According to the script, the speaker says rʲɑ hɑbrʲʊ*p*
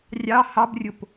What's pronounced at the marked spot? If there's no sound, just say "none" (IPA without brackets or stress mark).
p